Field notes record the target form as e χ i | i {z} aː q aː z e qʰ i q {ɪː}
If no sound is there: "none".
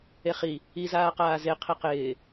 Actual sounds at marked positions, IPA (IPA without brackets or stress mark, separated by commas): z, ɪː